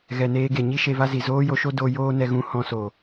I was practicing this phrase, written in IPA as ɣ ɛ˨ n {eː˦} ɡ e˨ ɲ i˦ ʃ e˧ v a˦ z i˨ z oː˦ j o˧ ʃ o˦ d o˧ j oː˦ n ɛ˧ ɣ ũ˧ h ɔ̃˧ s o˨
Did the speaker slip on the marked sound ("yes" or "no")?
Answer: yes